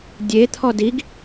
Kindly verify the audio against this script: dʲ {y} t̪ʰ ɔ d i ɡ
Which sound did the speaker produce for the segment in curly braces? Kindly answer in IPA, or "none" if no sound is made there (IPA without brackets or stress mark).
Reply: e